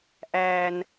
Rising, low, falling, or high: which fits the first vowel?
low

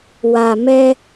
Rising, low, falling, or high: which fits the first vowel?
low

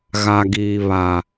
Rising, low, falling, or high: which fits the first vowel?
low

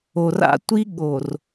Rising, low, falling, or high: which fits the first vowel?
low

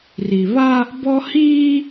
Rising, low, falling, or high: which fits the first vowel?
low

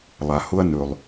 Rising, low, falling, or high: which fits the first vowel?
low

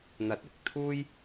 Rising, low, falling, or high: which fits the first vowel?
rising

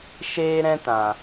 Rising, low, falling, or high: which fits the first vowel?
high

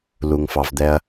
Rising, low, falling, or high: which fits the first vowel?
low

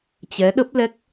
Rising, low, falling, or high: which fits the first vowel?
rising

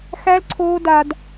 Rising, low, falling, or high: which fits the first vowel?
high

